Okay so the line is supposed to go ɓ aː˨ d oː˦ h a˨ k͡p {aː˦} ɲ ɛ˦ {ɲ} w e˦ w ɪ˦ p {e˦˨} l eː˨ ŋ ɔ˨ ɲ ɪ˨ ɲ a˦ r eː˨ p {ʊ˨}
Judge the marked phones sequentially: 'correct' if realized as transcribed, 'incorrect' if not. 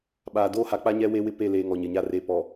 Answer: incorrect, incorrect, correct, incorrect

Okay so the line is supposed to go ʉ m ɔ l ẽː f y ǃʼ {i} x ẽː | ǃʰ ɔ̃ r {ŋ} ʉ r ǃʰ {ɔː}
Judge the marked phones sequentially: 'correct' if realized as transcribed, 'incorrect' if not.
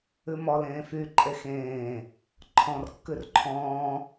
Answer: incorrect, incorrect, incorrect

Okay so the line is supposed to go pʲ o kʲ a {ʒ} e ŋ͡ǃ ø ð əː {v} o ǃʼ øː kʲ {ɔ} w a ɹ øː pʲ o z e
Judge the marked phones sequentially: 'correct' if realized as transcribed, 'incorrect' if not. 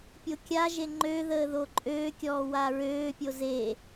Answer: correct, incorrect, incorrect

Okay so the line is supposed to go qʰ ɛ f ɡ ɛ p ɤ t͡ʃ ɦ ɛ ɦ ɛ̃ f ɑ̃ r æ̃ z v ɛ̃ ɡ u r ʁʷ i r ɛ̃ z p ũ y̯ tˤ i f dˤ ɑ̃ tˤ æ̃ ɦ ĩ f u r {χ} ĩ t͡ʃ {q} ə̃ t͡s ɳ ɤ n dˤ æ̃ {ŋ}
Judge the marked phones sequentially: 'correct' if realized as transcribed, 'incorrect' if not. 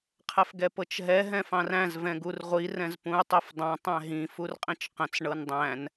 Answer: incorrect, correct, incorrect

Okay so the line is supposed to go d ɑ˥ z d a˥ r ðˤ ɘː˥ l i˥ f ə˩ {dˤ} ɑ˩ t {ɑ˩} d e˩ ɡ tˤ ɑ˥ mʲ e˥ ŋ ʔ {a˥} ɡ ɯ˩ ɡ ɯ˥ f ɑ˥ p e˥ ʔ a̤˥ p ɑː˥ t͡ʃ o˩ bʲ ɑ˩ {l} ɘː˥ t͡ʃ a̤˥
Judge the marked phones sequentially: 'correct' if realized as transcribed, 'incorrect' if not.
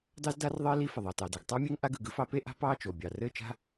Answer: incorrect, correct, correct, incorrect

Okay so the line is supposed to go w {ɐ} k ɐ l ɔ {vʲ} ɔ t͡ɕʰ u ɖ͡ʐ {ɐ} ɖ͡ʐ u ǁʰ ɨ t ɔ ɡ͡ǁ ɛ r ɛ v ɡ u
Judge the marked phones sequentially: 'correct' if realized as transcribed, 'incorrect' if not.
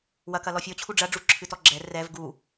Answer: correct, incorrect, correct

